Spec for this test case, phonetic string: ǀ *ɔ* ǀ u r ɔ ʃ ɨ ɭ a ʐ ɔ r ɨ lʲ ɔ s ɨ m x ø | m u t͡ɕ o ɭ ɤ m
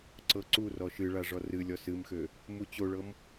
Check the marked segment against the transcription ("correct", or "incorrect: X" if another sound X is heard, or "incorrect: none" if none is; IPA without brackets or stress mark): incorrect: ɤ